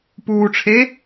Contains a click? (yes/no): no